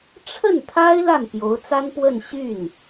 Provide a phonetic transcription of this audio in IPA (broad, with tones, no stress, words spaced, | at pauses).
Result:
ʈ͡ʂʰə˥˩nt̪ʰa˥ɪ̯ la˥˩npjo˧˥ʊ̯t͡sa˥npwə˥˧n ɕy˥˩n